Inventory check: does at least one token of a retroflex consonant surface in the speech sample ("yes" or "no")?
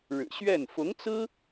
yes